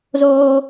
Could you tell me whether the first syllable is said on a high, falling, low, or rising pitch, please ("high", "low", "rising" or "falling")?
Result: high